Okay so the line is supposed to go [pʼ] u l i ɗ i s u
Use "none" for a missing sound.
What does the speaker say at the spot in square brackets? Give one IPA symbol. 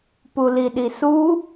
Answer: p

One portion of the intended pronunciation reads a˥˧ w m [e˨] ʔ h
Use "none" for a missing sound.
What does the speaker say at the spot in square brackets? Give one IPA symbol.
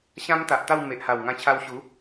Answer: e˨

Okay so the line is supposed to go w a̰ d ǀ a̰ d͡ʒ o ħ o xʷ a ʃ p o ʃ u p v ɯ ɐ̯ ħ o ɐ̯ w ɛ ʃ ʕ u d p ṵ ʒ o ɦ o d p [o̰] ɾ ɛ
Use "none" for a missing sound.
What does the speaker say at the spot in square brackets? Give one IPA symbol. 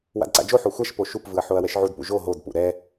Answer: ṵ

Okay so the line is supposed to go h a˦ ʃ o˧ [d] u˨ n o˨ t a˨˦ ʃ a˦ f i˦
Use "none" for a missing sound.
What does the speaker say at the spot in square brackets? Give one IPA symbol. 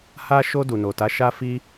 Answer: d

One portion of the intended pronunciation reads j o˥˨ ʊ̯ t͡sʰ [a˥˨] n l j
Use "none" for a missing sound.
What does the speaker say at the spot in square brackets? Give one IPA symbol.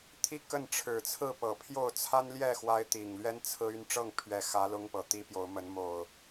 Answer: a˦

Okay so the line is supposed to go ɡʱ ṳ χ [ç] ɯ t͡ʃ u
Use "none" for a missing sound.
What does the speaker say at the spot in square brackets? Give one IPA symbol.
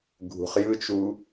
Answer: j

